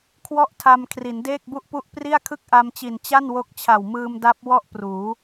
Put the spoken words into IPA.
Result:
kʰ w ɔ˥˩ ʔ tʰ a˧ m kʰ r i˩˦ n d eː˥˩ k̚ b u˥˩ ʔ p u˥˩ ʔ p r i˥˩ a̯ kʰ ɯ˥˩ k̚ ʔ a˧ m t͡ɕ i˨˩ n t͡ɕ a˥˩ n w o˦˥ k̚ t͡ɕʰ a˨˩ w m ɯː˧ m d a˦˥ p̚ w ɔ˥˩ ʔ p r uː˩˦

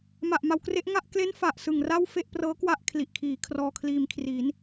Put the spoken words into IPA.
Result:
m a˨˩ ʔ m a˩˦ w k r e˦˥ ʔ ŋ a˥˩ ʔ k l e˦˥ n f a˨˩ ʔ s ɯ˨˩ ŋ r a˥˩ w f e˥˩ ʔ p r ɤː˦˥ k w a˥˩ ʔ kʰ l i˨˩ ʔ kʰ iː˩˦ kʰ r ɔː˧ kʰ l iː˧ m kʰ r i˩˦ n

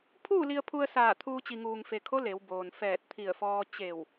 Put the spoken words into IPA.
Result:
pʰ uː˥˨ l i˧ ə̯ pʰ u˧ ə̯ s aː˧˩ t̪ʰ uː˧ t͡ɕ i˩ ŋ uː˩ ŋ f e˩ kʰ o˧˥ l e˩˧ w b oː˩ n f ɛː˧˩ t̚ t̪ʰ i˧˩ ə̯ f ɔː˧ t͡ɕ e˧˩ w

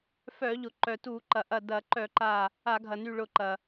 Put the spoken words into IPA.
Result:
f œ˧˩˧ ʎ ʊ˩ ǃ œ˩ t u˧˩˧ ǃ ɐ˩ ʔ ɐ˧˩ d ɐ˧˩˧ ǃ œ˧˩˧ ǃ a˧˩ | a˧˩˧ ɡʱ ɐ˩ n y˧˩ ɭ ʊ˧˩ ǃ ɐ˩

